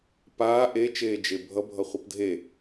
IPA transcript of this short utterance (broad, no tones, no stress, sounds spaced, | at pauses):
p aː ʔ e t͡ʃ eː d͡ʒ e bʱ ʌ bʱ ʌ χʷ ʌ p dʱ e